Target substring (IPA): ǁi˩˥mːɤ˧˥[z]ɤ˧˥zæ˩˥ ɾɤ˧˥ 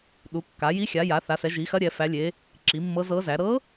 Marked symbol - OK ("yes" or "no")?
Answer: yes